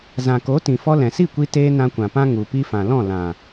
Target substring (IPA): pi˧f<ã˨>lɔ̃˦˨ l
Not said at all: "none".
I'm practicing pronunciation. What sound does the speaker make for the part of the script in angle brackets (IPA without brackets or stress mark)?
ã˨